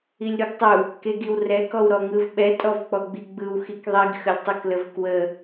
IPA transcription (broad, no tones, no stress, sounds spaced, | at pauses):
i lʲ ɾ u ɡ tˤ u | k e ɡ i w r ɛ k ɔ w ɾ ɔ ŋ ɯ v ɓ ɛ tʼ ɔ v k͡p ɔ ɡ͡b i ɡ͡b ɯ w x i k ðˤ i ɡ x ə lʲ tˤ u k l ə v k w ə